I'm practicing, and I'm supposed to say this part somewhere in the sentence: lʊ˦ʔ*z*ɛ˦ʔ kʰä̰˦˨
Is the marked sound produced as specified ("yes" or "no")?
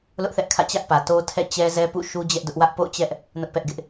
no